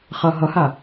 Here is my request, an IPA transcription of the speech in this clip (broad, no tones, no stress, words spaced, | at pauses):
χʌ ɦʌha